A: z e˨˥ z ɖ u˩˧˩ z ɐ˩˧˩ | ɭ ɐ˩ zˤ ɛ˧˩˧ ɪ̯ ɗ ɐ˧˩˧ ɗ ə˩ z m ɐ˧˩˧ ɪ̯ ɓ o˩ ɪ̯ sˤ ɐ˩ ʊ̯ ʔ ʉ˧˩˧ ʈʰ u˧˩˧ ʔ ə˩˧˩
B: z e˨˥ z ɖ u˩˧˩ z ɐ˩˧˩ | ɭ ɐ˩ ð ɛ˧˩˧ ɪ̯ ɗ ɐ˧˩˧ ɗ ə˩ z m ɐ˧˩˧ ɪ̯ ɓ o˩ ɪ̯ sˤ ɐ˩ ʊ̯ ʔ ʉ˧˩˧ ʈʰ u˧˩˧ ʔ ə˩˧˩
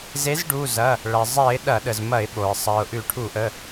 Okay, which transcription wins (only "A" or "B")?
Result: A